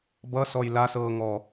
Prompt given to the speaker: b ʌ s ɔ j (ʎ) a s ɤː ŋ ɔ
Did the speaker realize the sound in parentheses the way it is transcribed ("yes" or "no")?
no